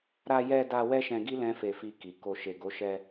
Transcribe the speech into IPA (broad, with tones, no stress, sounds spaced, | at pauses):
ɾ a˧ j ɛ˧ d a˧ w ɛ˦ ʃ ɛ̃˧ ɡ i˦ l ɛ̃˦ f e˧ f i˧ k i˨ k o˨ ʃ e˨ ɡ o˨˦ ʃ ɛ˧